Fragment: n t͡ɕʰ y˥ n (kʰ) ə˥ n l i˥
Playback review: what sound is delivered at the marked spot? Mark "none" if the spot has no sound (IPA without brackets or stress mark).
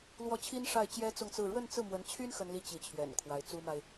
x